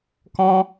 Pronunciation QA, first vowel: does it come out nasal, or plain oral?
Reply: nasal